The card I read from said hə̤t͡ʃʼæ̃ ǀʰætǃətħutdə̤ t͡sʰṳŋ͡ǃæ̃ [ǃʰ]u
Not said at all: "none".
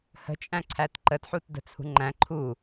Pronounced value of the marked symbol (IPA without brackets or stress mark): ǃʰ